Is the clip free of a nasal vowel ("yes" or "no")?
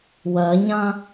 no